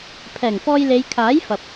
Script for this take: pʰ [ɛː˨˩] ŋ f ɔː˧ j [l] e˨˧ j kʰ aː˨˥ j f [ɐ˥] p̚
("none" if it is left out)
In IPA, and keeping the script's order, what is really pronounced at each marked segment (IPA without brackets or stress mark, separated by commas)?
ɛː˨˩, l, ɐ˨